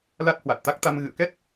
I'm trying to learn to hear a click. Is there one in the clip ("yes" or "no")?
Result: no